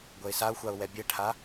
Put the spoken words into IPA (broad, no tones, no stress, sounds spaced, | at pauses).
ɡʷ ɛ ɪ̯ s a ʊ̯ xʷ a ʊ̯ w ɛ bʲ ɛ ʈʰ a